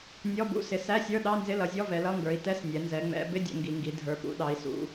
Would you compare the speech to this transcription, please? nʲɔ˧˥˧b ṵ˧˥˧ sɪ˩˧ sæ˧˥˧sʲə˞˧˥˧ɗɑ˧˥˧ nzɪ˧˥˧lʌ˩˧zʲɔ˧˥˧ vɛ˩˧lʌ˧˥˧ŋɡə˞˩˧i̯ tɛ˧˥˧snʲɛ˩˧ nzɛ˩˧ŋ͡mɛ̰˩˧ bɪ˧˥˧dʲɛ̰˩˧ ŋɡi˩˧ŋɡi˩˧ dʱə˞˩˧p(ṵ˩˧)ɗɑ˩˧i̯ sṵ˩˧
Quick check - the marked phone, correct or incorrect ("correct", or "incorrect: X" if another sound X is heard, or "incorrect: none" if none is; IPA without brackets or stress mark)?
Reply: correct